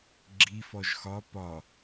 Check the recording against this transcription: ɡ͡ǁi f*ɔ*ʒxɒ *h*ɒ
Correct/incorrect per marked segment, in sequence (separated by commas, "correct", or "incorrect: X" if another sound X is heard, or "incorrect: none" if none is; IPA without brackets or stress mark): correct, incorrect: p